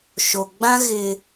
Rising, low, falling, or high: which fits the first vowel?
low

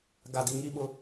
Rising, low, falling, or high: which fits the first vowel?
low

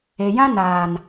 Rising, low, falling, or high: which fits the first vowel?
low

